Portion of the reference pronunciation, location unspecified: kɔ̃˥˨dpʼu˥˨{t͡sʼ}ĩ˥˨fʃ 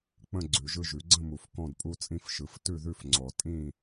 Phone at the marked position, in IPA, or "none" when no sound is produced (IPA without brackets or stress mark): t͡sʼ